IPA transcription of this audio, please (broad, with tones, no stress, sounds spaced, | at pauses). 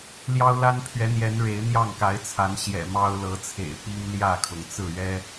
l j ɑ˦ ʊ̯ l a˦ n pʰ ɥ ɛ˨˦ n̪ j ɛ˨˦ n ɻ e˨˦ ɪ̯ n̪ j ɑ˥˨ ŋ k a˨˦ ɪ̯ t͡sʰ a˨˦ n ɕ j ɛ̰˨˩ m ɑ˦ ʊ̯ l ɤ˨˦ t͡sʰ ḛ˨˩ ɪ̯ p i˦ ŋ l j ä˥˨ kʰ ʊ˩ ŋ t͡s ɹ̩˥˨ ɥ ɛ˦